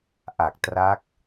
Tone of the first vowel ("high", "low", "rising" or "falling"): low